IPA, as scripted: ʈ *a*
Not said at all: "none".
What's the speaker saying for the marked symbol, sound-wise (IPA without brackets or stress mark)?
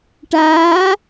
aː